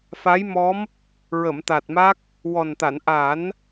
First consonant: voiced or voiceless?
voiceless